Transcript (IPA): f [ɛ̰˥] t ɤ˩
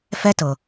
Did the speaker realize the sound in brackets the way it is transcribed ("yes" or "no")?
no